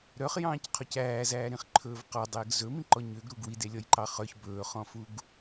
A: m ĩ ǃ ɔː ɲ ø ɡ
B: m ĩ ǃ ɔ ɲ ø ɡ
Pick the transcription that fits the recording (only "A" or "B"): B